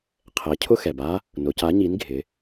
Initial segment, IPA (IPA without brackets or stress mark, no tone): qʰ